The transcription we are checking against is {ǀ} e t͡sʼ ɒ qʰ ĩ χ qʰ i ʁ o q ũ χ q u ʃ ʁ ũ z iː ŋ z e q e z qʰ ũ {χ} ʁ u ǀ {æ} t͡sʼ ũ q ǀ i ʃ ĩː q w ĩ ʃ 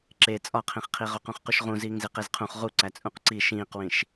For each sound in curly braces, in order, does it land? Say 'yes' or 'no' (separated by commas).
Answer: no, yes, yes